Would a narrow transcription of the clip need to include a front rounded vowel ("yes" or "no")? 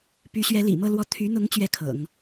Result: yes